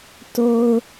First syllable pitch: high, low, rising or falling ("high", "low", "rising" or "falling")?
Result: high